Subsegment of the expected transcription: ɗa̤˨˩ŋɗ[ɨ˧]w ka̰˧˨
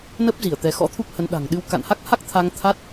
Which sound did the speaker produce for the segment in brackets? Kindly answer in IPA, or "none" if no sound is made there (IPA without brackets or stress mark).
ɨ˧